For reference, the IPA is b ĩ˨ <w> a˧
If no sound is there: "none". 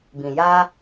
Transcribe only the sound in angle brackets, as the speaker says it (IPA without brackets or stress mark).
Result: j